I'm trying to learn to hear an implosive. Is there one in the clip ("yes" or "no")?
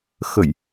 no